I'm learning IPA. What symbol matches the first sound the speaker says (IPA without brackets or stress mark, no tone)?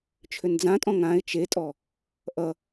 t͡ʃʰ